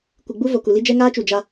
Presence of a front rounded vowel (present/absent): absent